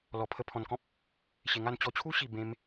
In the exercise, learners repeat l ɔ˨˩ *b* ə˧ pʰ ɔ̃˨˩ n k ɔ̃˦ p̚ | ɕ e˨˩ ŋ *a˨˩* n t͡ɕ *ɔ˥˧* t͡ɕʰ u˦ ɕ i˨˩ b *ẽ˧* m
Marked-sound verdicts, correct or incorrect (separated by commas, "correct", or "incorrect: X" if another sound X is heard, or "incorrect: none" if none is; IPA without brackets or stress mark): incorrect: pʰ, incorrect: a˥˧, incorrect: ɔ˧, correct